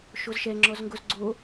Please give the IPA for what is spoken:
ʃ o z ʃ ɛ ŋ͡ǁ ɔ z ŋ ɡ o z ɡ͡ǀ o

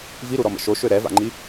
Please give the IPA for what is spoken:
v i ɾ u ɾ ɔ m ə̰ ʃ o ʃ ø ɾ ɛ v a̰ ŋ͡ǃ i

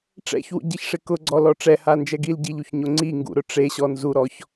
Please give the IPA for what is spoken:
ʈ͡ʂ ɛ̰ ç w ṵ ɟ i ç ʂ ɪ k ʊ ɡ͡ǀ ɔ l ɔ ʈ͡ʂ ɛ h a n d͡ʒ ɛ ɡ i l ɟ i ʎ u ç ɲ o ŋ͡ǀ i ŋ ɡ ṵ ɾ ʊ ʈ͡ʂ e ɕ ɔ n z u ɾ ɔ ç

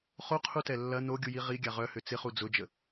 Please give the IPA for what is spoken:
χ o qʰ u t ɛ lː ɐ n o ɡʲ u j i ʁ i ɡʲ a ʁ œ h ʏ t͡s ɪ χ u d͡z ʊ d͡ʒ ə

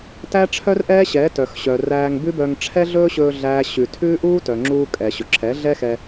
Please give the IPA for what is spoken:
t æ˦ ʈ͡ʂʰ œ˦ r ʔ ɛː˦ ɕ ɛː˨˦ t œ˨ x ɕ œ˨ r æː˧ ŋ b ʉ˦ b œ˧ ŋ ʈ͡ʂʰ ɛ˦ ɮ ɵː˦ ɕ ɵː˧ ɮ æː˦ ɕ ʉ˧ tʰ ʉː˦ ʔ uː˦ t œ˨ ŋ͡ǁ uː˧ kʼ ɛ˨ ɕ ɵ˨ ǁʰ ɛ˨˦ ɮ ɛ˦ x ɛ˧

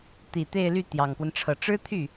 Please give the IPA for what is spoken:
t̪ i˨˩ t̪ e˥˧ ɪ̯ l y˥˩ t̪ j ɑ˨˩ ŋ k w ə˦ n ʈ͡ʂʰ ɤ˨˩ ʈ͡ʂ ɻ̩˥ t̪ʰ y˥˩

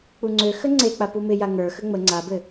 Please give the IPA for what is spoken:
k͡p u ŋ͡ǀ ø x ə ŋ͡ǀ e k͡p a p u m ɪ j a ŋ ə˞ x ə ŋ͡m ə ŋ͡ǀ a b ɘ

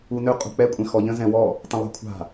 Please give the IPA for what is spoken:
u n ø qʼ ṳ k͡p ɛ kʷʼ ɛ̃ x ɔ ʎ ə̃ z ɛ̃ w ɔ | tˤ ə̃ lˠ a̤ kʷʰ a̤

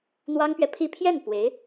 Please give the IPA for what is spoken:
n̪ w ɑ˥ ŋ p ɥ ɛ˨ pʰ i˥˧ pʰ j ɛ˥˩ n p w e˧˥ ɪ̯

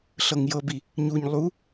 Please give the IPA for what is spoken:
ɬ ɤ ŋ j ɤ b i | ɲ u ɲ lˠ u

